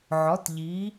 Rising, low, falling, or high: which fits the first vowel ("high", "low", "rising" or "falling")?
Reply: rising